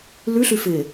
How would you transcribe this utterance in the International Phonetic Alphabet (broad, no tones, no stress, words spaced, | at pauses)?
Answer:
lʉɬʉfɪː